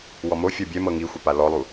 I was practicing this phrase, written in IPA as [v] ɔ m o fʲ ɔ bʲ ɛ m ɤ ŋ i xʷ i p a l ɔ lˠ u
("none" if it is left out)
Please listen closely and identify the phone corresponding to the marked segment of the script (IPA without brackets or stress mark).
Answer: w